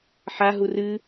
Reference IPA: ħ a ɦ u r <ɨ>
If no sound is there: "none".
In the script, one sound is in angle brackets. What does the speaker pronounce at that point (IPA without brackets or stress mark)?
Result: ɨ